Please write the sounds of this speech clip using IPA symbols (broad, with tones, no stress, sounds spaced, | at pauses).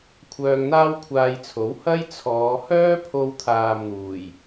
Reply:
kʷʰ œː˧ ŋ n̪ aː˥ w kʷʰ aː˧ j t͡sʰ o˨˥ w h ɐ˥ j t͡sʰ ɔː˨˧ h œː˥ pʰ o˧ w t̪ʰ aː˨ m n̪ uː˨˩ j